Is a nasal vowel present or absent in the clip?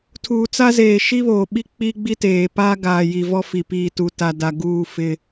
absent